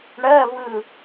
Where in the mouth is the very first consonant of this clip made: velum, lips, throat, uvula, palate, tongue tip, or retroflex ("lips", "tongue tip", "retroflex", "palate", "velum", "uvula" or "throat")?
retroflex